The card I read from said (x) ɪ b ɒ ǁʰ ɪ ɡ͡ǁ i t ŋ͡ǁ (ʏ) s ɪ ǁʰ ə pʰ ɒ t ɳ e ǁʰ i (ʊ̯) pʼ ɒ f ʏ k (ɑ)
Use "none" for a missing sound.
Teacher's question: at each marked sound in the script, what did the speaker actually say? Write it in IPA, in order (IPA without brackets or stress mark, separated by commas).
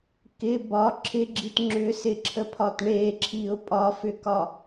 k, ʏ, ʊ̯, ɒ